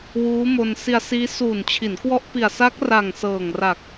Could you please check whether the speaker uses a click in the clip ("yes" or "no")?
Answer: no